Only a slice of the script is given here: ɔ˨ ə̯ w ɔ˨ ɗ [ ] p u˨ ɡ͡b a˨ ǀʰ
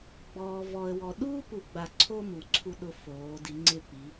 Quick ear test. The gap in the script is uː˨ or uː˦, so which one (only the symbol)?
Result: uː˦